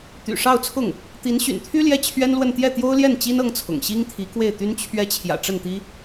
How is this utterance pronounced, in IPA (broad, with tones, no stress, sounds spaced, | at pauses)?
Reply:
t̪ y̰˨˩ ʂ ɑ˥˧ ʊ̯ t͡sʰ ʊ˥˩ ŋ | t̪ i˧˥ n ɕ y̰˨˩ n t̪ʰ y˥ l j ɛ˥˩ t͡ɕʰ ɥ ɛ˥ n l w ə˥˧ n t̪ j ɛ˥˩ t̪ j o˥ ʊ̯ l j ɛ˥˩ n t͡ɕ i˥ n ɤ˥ ŋ t͡sʰ ʊ̰˨˩ ŋ ɕ i˥ ŋ t̪ʰ i˧˥ k w e˥˩ ɪ̯ t̪ y˥ n t͡ɕʰ ɥ ɛ˥ t͡ɕʰ j ä̰˨˩ ʈ͡ʂ ə˥˩ n t̪ i˥